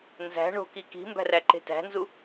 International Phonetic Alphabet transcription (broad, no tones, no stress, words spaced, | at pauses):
nzæ̤ ɳo̤ki ki̤mbæ̤ ræǃe̤tæ̤nzu